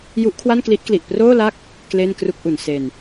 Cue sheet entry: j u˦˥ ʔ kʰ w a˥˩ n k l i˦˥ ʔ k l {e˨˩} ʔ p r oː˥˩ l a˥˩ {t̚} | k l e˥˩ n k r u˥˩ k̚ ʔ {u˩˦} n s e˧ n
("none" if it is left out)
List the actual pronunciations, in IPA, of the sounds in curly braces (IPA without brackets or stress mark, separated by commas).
i˨˩, k̚, u˩˦